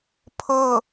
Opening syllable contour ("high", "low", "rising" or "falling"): falling